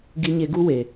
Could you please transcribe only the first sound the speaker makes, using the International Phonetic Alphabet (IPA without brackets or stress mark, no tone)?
ɡ